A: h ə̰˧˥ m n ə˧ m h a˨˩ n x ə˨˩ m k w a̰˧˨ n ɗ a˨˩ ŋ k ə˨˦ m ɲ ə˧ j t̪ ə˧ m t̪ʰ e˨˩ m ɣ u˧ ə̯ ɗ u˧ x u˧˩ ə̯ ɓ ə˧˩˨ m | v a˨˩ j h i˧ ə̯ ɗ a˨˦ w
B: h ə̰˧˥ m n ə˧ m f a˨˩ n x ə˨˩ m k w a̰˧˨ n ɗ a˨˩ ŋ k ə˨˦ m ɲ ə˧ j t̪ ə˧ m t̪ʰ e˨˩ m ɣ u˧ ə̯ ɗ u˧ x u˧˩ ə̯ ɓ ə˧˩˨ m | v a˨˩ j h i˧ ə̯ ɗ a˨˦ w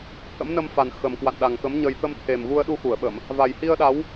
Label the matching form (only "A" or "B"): B